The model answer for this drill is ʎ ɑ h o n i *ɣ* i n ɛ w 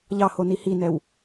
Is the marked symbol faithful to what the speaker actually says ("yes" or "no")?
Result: no